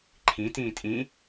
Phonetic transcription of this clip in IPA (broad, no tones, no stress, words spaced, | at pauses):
ǃʰĩ tĩːtʼĩ